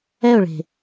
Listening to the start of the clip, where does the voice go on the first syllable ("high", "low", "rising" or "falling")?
falling